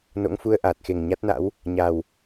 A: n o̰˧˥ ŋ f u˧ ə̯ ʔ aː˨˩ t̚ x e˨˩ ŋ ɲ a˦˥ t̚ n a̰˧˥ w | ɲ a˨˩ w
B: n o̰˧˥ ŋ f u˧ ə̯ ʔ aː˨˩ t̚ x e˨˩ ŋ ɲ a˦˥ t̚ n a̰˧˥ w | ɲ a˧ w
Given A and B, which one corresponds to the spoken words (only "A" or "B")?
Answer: A